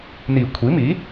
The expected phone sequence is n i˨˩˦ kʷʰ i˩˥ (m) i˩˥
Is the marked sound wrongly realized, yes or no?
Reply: no